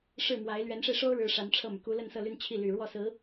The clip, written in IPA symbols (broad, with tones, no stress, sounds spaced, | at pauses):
ʂ ɻ̩˥˩ m w a˧˥ ɪ̯ l ɥ ɛ˧˥ n ʂ e˧ ɪ̯ ʂ o˥ ʊ̯ ɻ ɻ̩˧˥ ʂ a˧˥ n ʈ͡ʂʰ ɤ˥˩ m y˩ k u˥ l ə˥˧ n s ɤ˥˧ l y˥˧ n t͡ɕʰ i˥˩ l y˨˩ ɻ w ɔ˥˩ s ɹ̩˧˥